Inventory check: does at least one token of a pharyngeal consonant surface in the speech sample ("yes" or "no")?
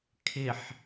yes